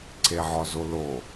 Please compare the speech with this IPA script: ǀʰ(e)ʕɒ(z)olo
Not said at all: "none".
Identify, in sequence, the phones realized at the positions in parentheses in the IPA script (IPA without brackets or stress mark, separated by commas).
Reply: e, z